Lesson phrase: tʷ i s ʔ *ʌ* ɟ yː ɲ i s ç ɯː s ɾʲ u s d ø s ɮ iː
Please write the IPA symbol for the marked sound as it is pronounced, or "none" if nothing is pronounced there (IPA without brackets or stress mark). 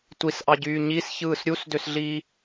ɑ